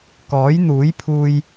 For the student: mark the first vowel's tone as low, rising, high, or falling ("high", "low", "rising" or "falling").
rising